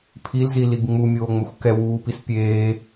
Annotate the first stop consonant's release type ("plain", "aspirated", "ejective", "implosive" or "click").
aspirated